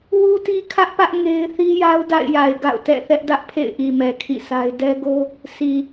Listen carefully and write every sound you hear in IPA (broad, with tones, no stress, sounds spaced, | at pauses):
w u˦ t i˦ kʰ ä˦ ʔ p ä˦ ʔ ŋ e˦ ɪ̯ θ i˦ j a˦ ʊ̯ d a̰˦˨ ɪ̯ j a˨ ɪ̯ ɡ a̰˦˨ ʊ̯ t ɛ̰˦˨ θ ɛ˦ ʔ d ä˦ ʔ pʰ ḛ˦˨ ɪ̯ ʔ i˨ m ɛ˨ kʰ ḭ˦˨ s a˦ ɪ̯ d ɛ˦ ɡ o˦ | sʰ i˨